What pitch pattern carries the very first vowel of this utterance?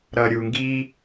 low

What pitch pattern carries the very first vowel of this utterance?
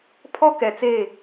high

